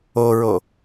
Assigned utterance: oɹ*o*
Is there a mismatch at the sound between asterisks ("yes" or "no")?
no